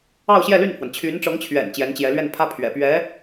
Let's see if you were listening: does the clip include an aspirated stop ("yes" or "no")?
yes